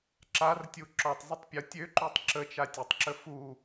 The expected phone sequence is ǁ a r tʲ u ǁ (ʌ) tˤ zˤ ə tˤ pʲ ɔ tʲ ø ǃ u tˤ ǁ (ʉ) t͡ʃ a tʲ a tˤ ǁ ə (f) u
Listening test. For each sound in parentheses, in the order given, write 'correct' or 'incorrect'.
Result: incorrect, incorrect, correct

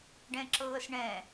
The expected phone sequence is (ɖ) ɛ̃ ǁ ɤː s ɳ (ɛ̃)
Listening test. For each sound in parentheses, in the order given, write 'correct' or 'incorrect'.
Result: correct, correct

